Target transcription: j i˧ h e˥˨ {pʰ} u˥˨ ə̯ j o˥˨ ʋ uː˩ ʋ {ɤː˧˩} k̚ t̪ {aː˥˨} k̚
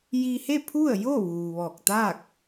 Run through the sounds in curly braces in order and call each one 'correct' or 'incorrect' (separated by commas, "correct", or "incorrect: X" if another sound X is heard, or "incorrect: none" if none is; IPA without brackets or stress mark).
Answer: correct, incorrect: ɔː˧˩, correct